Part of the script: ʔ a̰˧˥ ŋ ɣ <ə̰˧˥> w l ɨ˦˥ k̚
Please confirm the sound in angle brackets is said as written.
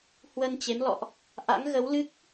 no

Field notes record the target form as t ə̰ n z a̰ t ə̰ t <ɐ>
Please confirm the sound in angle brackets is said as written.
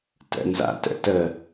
no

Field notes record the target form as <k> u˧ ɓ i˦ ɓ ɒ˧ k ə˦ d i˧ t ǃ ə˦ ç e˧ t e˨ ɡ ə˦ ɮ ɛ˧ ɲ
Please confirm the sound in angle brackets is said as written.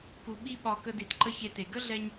yes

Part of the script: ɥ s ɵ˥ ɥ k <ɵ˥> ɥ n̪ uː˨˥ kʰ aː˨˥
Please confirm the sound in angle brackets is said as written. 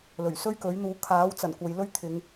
no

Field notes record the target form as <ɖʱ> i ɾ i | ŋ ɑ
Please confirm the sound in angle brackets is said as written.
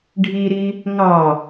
yes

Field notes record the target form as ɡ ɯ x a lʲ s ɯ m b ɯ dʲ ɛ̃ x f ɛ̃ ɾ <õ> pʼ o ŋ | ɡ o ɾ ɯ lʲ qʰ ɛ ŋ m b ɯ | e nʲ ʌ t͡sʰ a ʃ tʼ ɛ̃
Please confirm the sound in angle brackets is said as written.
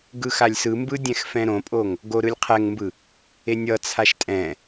yes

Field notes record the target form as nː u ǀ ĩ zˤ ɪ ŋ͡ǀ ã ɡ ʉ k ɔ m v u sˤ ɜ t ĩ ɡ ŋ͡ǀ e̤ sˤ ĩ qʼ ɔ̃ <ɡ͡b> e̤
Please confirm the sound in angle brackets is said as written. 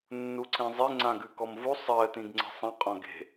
no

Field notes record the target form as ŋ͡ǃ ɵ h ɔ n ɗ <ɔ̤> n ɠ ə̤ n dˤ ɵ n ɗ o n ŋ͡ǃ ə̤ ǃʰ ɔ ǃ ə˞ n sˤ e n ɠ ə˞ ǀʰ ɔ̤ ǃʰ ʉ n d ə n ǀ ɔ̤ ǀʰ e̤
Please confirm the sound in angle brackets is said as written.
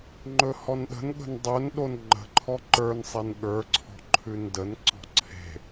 no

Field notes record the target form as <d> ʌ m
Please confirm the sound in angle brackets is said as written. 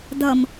yes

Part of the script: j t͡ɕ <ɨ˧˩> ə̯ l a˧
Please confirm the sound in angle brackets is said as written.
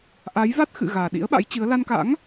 no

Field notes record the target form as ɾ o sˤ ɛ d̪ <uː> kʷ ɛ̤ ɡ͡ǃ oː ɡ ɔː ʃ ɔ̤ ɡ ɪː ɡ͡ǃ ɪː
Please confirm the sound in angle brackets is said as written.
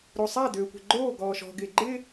no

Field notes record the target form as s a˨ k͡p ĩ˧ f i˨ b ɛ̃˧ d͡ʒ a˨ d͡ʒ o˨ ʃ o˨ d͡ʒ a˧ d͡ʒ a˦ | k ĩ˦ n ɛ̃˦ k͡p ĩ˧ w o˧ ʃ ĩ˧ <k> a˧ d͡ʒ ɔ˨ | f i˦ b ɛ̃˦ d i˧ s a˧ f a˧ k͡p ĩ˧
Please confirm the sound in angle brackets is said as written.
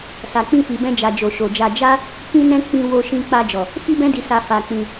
no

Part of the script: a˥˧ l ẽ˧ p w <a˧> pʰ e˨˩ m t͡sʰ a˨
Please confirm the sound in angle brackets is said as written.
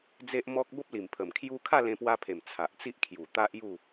yes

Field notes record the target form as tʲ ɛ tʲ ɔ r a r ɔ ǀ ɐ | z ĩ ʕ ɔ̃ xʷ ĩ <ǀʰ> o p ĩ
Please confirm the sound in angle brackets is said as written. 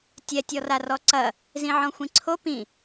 yes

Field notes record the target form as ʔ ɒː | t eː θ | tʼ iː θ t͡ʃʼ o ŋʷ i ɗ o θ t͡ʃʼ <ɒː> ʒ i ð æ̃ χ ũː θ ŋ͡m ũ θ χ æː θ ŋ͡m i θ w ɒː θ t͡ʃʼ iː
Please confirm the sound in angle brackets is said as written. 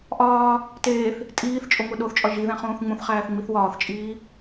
no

